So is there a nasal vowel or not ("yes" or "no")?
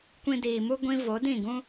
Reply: yes